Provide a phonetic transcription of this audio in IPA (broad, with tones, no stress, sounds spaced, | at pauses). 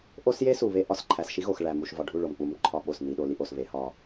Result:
ʔ o˦ s j e˦ s u˨ β e˦ ʔ ɒ˨ s ǃʰ æ˨ s ʃ i˦ ɣ o˨ x ɭ æ˨ m u˨ ʃ v ɒ˨ ɖʱ u˦˨ ɭ o˨ m k͡p u˨˦ m ǃʰ ɒ˨ ɓ o˨ s n i˨ ɗ o˨ l i˨ ʔ o˨ s β e˨˦ h ɒ˦